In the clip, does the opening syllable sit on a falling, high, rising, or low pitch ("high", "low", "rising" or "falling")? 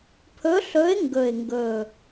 rising